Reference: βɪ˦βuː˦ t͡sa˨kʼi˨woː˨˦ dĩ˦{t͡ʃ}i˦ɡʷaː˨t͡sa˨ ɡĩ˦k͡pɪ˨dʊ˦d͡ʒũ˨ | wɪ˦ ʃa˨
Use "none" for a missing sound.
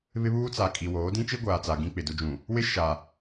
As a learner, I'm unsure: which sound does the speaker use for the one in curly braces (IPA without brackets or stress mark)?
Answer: t͡ʃ